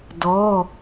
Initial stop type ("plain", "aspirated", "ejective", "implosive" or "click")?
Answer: plain